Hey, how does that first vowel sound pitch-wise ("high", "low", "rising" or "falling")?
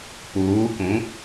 rising